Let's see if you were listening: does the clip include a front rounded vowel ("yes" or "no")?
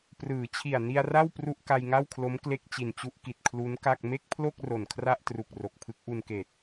no